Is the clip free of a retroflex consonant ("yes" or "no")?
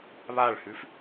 no